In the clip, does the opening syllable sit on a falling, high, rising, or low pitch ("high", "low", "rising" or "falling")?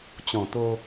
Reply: low